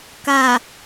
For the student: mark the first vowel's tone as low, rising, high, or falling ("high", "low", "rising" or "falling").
low